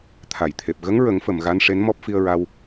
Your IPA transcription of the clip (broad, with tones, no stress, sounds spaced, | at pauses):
t̪ʰ a˨˩˨ j t̪ʰ e˨˩ p̚ ɣ ə˧˥ ŋ ɹ ə˨˩˦ ŋ f ə˨˩˨ m ɣ a˧˥ n ʂ e˧˥ n m ɔ˦˥ p̚ f i˧ ə̯ ɹ a˧ w